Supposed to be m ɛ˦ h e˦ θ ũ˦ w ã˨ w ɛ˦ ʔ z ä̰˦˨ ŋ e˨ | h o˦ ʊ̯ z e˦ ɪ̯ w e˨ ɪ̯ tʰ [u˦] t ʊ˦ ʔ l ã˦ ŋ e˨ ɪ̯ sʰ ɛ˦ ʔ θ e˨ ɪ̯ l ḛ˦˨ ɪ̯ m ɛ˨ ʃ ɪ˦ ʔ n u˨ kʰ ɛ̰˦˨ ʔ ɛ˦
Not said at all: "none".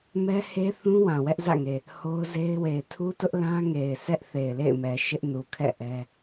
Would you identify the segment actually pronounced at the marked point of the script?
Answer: u˦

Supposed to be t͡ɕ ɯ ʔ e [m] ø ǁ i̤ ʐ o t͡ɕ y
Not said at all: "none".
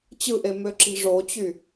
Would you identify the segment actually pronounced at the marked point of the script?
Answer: m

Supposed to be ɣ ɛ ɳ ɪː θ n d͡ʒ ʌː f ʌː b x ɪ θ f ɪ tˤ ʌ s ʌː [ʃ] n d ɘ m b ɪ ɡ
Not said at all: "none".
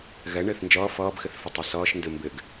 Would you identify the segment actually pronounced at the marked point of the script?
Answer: ʃ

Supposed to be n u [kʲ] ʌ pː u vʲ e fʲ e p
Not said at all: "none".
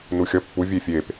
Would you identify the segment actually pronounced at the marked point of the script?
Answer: xʲ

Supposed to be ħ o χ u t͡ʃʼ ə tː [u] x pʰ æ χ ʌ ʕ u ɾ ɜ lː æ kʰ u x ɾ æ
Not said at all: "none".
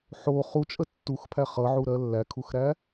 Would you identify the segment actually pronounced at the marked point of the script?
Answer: u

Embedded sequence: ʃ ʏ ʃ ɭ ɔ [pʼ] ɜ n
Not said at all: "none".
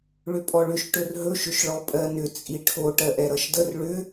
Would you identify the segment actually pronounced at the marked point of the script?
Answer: pʼ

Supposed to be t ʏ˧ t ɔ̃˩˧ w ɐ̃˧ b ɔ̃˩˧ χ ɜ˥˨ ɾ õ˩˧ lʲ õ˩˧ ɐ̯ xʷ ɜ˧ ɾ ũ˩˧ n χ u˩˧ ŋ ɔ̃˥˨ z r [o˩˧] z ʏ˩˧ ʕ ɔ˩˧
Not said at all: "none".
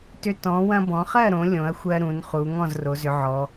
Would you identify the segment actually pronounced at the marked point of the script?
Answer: o˩˧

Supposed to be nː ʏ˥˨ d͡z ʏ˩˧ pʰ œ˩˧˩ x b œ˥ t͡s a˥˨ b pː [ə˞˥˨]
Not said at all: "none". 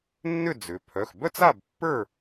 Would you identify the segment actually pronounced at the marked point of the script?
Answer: ə˞˥˨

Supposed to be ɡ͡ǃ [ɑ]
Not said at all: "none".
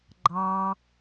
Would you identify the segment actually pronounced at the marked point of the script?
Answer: ɑ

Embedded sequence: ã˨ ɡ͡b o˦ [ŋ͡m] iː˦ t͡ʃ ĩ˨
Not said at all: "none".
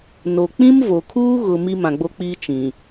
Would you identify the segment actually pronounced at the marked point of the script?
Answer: k͡p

